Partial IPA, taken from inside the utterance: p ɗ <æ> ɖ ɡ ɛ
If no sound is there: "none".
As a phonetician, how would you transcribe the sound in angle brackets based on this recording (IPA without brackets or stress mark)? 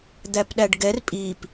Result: æ